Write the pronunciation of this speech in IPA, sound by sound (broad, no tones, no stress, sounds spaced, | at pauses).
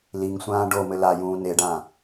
l i ŋ sʷ ãː ɖ o m ɘ l a j ũː n e ɖ ã